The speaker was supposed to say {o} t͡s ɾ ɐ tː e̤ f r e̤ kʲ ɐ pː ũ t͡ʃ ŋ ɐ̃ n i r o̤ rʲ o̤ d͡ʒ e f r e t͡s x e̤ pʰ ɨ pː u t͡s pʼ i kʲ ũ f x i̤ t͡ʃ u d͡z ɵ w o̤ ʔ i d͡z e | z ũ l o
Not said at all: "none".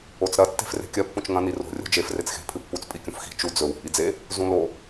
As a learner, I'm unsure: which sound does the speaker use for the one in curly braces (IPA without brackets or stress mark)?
o